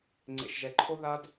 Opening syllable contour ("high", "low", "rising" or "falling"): low